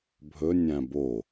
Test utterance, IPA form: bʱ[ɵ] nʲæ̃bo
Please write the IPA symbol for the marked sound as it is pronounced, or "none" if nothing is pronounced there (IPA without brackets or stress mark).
ɵ